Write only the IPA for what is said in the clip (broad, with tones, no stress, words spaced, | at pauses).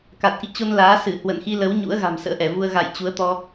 ka˨˩t̚ʔḭ˧˨t͡ɕo˧n laː˨˦sɨ˧˩ hwə̰˧˨nxi˧lə˨˦w ɲṵ˧˥ə̯ ɣa̤˨˩msə̰ː˧˥ʔɛ˧˩vu˧ə̯ ɣa̰˧˨j t͡ɕu˨˦ə̯t̪ɔ˧